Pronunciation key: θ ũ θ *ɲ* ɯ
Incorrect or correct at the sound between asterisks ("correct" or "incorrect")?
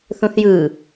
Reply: incorrect